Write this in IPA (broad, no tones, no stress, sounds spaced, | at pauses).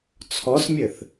t͡sʰ ɔ s mʲ ɘ θ